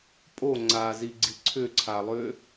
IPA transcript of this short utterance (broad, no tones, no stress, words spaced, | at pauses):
pʼoŋ͡ǀaːziɡ͡ǀi ǀʰʏǀʰalˠʏː